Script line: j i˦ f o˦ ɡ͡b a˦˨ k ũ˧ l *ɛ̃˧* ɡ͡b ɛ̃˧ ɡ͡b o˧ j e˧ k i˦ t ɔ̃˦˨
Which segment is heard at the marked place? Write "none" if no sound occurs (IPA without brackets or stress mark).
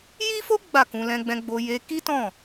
ɛ̃˧